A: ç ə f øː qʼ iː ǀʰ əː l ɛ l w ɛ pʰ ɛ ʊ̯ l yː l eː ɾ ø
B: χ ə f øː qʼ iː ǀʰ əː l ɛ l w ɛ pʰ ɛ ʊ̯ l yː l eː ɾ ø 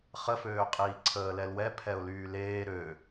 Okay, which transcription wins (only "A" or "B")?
B